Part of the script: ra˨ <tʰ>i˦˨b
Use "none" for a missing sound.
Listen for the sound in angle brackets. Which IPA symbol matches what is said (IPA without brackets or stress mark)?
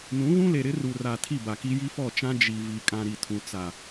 tʰ